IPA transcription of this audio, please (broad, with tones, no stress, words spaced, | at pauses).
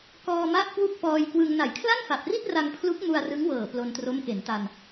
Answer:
kɔː˧ma˦˥ʔ kwu˥˩k̚pɔː˧jkwɯ˧ŋ na˩˦jkʰla˥˩nfa˨˩p̚ri˥˩t̚ ra˧ŋpʰlu˦˥k̚ mu˧a̯rɯ˦˥ŋwɤː˨˩ plo˧ntro˦˥mke˩˦nta˧n